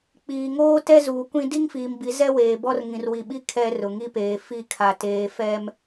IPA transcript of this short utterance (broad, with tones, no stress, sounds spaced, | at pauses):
k͡p iː˨ ŋ oː˦ t ɛ˦ z uː˨ kʷ ĩ˦ d i˦ ŋ f iː˨ m b i˨˦ z ɛ˦ w eː˨ b ɔ˦ r ŋ ĩ˨ r w i˨ ɓ i˦ kʰ ɛ˦ r ʊ˨ ŋ i˦ p eː˨ f i˦˨ kʰ a˨ t eː˨ f ɛ˦ m